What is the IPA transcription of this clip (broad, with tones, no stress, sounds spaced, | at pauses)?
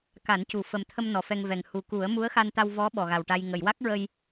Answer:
k a˨˩˦ n c u˨˩ f ə˨˩ m t̪ʰ ə˧ m n ɔ˨˩ f ɛ˧ ŋ v ɛ˨˩ ŋ h u˨˩ k u˨˩˦ ə̯ m u˧˥ ə̯ x a˧ n t̪ a˧ w v ɔ˧˥ ɓ ɔ˨˩ ɣ a˨˩ w ʈ a˧ j ŋ ə˨˩˨ j w a˦˥ k̚ ɹ ə˧ j